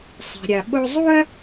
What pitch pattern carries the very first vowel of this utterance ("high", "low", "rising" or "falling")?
low